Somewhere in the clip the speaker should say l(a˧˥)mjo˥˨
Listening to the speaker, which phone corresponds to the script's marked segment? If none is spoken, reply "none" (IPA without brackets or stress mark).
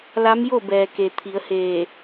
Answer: a˧˥